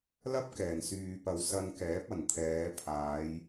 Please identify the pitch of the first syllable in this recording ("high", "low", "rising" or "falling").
high